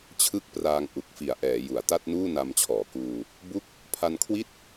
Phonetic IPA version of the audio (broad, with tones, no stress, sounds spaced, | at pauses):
t͡ɕʰ ɯ˦˥ k̚ p r aː˧ ŋ ʔ u˨˩ k̚ f i˨˩ a̯ ʔ ɛː˩˦ j u˩˦ a̯ t a˥˩ t̚ n uː˥˩ n a˧ m t͡ɕʰ ɔː˩˦ k uː˧ | b u˦˥ k̚ | pʰ a˧ n kʰ w i˥˩ t̚